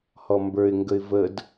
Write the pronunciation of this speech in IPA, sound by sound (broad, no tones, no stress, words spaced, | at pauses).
hɔmbə˞ɪ̯ŋɡəɪ̯ vəd